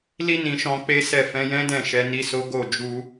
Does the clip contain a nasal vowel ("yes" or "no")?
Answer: yes